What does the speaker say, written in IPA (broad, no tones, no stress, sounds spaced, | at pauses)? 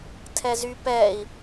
tʰ ɛ z y p ɛ i̯